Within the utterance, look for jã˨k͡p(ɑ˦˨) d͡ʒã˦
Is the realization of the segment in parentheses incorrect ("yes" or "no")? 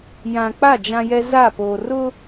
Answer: yes